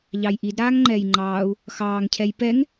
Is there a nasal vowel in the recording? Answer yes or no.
no